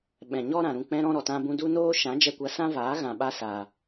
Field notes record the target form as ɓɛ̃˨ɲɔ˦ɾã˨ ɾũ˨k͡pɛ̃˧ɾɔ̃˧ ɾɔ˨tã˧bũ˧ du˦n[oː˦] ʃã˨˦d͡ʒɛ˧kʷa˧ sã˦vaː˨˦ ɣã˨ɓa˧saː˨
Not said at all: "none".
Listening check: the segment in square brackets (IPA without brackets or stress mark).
oː˦